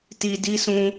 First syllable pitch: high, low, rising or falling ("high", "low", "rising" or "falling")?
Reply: low